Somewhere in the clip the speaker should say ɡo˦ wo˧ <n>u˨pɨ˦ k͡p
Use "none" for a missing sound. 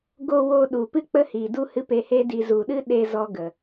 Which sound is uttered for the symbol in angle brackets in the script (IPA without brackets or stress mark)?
ɗ